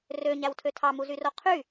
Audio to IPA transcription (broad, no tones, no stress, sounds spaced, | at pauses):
r ø ɲ æ w tʰ ø tʰ ɑ m u z y r o qʰ y